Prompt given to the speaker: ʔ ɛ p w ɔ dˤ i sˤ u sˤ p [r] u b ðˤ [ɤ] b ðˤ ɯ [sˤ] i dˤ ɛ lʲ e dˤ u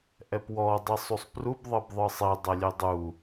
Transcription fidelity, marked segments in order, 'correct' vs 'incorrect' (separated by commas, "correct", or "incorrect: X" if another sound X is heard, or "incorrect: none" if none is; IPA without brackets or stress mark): correct, correct, correct